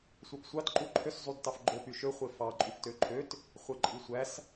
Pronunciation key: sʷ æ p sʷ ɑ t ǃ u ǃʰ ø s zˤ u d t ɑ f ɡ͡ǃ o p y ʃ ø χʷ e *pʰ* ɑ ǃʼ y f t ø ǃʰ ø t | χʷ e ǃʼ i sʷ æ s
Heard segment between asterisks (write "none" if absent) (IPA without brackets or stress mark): f